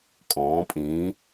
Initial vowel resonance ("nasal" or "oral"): nasal